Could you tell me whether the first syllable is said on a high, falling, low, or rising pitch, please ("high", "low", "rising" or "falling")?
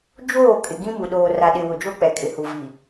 falling